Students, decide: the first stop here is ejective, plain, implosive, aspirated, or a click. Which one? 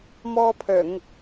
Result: aspirated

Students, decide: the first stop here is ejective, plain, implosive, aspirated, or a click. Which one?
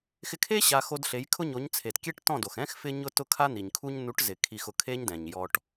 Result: aspirated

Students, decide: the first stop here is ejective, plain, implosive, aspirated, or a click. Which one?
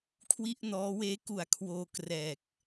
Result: aspirated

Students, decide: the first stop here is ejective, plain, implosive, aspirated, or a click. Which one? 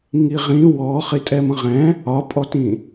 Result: ejective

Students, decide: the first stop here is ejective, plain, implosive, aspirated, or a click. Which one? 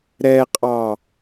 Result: ejective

